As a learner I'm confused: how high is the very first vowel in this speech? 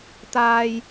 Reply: low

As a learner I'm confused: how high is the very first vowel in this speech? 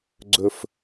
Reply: mid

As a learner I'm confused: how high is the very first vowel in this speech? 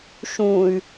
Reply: high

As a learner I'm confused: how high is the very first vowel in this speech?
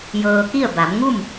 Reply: mid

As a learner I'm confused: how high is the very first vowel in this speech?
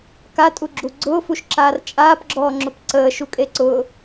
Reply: low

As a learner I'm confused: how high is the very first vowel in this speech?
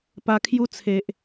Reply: low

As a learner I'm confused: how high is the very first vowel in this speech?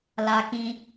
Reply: low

